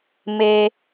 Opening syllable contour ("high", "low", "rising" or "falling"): high